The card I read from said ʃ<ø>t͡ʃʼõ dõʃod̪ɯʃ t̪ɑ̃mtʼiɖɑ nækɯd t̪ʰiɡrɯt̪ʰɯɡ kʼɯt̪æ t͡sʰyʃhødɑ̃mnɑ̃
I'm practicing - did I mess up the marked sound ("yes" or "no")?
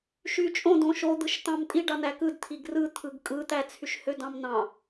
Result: yes